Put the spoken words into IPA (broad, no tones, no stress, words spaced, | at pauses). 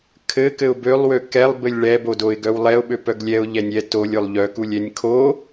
kʰɘ kɘʊ̯bølˠwø kɛlˠbɘlʲ ɭɛbodoɪ̯ ɡœwlˠɛʊ̯ɓø pœɡlʲɛʊ̯ ʎɛnʲɛ tolʲ olˠʎœkulʲ ɛnʲkʰo